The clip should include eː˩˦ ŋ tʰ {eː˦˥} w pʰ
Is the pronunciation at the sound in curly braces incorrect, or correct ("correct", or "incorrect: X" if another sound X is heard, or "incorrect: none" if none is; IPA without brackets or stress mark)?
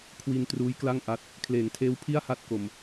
correct